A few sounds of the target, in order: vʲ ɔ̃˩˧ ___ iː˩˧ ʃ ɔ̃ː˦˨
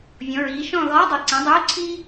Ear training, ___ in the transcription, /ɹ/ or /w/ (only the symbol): ɹ